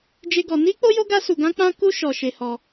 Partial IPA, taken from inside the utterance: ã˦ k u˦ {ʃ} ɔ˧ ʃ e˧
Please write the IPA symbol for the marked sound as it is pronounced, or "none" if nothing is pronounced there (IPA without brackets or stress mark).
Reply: ʃ